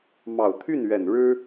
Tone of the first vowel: low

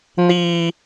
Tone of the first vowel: high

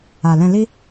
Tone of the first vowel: low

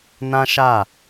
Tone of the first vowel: high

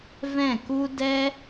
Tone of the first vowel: falling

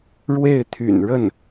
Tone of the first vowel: falling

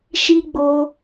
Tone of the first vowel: high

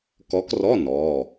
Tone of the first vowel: rising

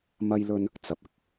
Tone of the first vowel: high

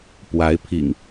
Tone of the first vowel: rising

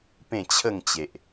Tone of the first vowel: falling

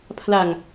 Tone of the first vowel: low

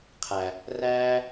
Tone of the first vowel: low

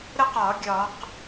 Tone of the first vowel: falling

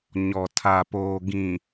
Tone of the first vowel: low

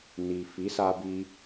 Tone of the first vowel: low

